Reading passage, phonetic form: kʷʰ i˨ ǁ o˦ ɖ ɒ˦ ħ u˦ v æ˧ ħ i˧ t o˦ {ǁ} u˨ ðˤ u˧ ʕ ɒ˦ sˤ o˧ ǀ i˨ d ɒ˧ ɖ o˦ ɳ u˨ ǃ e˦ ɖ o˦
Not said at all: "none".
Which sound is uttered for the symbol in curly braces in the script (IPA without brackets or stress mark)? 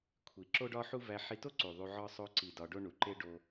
ǀ